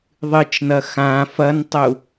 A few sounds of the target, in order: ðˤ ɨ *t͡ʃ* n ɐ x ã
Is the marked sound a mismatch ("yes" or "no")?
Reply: no